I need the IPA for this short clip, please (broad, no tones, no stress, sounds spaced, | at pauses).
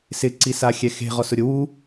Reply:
s ɪ ǀ i s a xʲ ɛ x e̤ ʁ ɔ s ʊ ɾʲ ʊ w u